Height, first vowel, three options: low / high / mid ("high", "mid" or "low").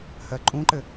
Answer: mid